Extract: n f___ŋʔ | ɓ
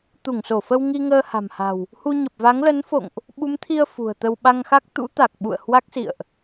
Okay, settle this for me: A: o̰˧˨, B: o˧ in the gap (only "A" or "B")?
A